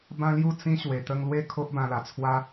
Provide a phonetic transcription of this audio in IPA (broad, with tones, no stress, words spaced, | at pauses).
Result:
bã˦lju˥˧t͡sĩ˦ ɕwe˧t̪ə˦ŋ lwe˥˧kʰo˦ʔ bã˧la˨˩t͡sʰwa˦